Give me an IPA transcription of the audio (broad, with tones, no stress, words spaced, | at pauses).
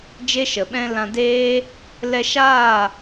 d͡ʒe˦ʃə˨ɓɛ̃˦ lã˧deː˦ | lɛ˧ʃaː˦˨